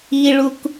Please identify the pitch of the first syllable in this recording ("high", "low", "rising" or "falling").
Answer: high